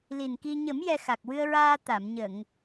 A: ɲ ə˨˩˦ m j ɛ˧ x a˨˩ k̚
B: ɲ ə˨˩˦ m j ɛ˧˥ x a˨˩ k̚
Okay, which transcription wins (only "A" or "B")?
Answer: A